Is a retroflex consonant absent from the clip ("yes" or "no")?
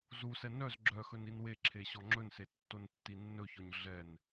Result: yes